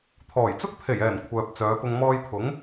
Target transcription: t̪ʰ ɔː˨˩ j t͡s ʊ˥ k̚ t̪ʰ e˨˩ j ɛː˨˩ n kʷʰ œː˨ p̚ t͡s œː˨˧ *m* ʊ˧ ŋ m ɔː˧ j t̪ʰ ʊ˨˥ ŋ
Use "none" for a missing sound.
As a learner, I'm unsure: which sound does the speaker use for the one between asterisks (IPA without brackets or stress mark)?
p